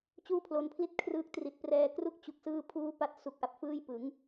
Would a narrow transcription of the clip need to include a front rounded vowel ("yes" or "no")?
no